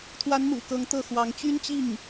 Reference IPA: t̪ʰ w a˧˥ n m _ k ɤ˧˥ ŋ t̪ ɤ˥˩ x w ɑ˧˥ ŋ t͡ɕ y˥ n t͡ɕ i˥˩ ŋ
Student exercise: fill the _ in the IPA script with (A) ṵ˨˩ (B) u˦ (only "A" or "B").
A